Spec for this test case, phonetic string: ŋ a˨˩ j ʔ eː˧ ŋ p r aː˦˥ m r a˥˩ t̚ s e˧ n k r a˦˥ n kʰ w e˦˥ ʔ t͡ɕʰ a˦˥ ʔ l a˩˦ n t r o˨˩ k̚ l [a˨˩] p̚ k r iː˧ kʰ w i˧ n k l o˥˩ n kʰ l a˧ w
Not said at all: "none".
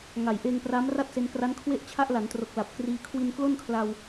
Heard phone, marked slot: a˨˩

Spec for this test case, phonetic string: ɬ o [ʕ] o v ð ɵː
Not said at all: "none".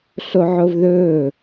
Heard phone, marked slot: ʕ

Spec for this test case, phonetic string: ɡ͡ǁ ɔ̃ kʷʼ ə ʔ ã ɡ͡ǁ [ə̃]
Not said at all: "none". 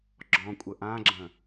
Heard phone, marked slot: ə̃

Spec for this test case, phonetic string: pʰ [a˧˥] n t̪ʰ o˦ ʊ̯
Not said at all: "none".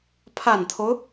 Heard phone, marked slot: a˨˩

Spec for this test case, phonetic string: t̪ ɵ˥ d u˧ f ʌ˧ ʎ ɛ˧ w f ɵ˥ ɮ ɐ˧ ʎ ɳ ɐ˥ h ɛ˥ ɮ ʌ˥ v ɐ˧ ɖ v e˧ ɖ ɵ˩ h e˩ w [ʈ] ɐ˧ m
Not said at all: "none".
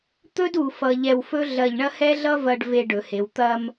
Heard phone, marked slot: t̪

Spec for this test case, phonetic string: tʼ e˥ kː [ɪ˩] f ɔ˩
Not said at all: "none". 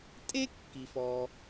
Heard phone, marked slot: i˩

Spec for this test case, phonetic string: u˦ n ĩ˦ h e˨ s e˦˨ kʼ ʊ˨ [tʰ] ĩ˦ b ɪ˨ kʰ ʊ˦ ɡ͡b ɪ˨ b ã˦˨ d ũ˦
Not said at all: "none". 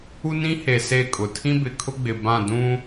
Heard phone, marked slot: tʰ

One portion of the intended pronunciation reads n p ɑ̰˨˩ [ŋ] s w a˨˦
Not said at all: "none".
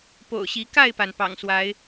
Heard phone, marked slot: ŋ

